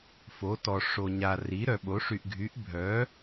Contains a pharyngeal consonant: no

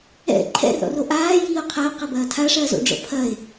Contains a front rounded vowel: no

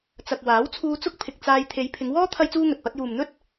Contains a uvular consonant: no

